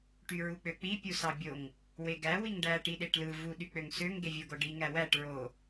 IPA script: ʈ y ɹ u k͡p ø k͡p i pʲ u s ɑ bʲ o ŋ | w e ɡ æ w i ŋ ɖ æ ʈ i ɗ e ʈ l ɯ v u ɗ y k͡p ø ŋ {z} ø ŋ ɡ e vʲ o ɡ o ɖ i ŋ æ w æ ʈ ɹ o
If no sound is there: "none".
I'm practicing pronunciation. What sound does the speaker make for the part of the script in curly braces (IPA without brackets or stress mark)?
s